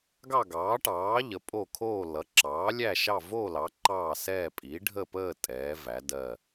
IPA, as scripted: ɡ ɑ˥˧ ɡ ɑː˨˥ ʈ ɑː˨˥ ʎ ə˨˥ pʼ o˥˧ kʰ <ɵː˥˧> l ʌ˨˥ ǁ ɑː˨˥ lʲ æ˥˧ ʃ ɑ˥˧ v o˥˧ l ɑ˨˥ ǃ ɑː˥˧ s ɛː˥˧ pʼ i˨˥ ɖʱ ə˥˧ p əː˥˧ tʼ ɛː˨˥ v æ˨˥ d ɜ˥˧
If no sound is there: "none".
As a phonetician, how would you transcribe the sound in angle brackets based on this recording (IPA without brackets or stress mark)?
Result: oː˥˧